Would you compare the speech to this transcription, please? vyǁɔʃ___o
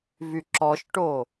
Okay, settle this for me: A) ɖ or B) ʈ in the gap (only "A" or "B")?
B